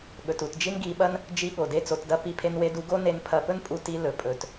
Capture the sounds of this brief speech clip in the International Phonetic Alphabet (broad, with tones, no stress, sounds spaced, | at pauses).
ɠ ɵ˩ t u˩ t d͡ʒ i˥ n ɡ i˧ ɓ ɐ˥ n | d͡ʒ i˧ ɠ o˩ d e˧ t͡s o˧ t d ɐ˥ p i˧ pʰ e˧ n w e˧ d u˧ ɡ o˥ n e˧ n pʰ ɐ˧ p ɵ˥ n pʼ u˧ t i˧ l ɵ˩ pʼ ɵ˩ t